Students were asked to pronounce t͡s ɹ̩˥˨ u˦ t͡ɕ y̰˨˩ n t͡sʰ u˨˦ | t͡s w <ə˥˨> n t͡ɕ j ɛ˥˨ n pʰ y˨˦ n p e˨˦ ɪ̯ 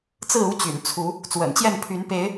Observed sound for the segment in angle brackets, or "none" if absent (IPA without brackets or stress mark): ə̰˨˩